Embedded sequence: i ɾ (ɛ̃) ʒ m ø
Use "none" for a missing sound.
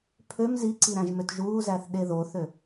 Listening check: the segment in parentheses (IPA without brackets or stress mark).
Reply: æ̃